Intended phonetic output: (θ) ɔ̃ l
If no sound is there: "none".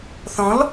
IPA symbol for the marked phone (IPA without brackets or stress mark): θ